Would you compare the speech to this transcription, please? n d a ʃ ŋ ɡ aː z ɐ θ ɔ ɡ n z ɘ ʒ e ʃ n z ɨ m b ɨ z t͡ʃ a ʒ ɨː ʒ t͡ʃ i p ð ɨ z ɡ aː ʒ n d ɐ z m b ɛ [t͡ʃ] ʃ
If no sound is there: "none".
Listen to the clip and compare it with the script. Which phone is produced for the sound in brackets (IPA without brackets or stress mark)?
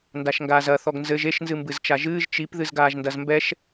none